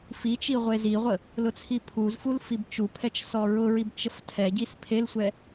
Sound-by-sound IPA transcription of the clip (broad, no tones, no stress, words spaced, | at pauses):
fi t͡ʃiʁʷeziʁʷə | lʊt͡sʰipʰuzful fibt͡ʃupʰɛt͡ʃ sɔɹʊɹib t͡ʃəftʰɛɟis pʰelsʷɛ